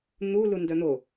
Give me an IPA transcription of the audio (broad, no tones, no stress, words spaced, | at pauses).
n̪u lundœn̪o